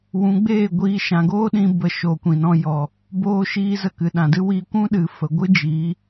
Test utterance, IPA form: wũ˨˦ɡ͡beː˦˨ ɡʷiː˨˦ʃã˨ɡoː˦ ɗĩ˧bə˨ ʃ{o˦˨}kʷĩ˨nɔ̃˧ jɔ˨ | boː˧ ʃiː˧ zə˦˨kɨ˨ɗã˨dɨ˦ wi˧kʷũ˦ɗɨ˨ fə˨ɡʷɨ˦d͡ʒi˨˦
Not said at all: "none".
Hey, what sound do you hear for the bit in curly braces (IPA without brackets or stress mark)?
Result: o˨